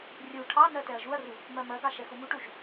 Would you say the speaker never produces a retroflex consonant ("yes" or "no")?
no